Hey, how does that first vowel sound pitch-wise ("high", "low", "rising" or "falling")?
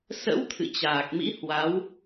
rising